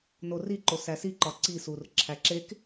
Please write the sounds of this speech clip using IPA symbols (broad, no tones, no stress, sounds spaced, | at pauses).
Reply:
n o r i ǃ o s æ s i ǃ ɒ ǀ i s u r ǁʰ æ ǁ e k